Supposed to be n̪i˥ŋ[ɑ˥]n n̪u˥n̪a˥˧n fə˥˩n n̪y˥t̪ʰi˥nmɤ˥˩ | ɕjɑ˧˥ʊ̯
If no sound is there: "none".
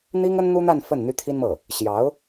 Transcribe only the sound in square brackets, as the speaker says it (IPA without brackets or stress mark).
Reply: ə˥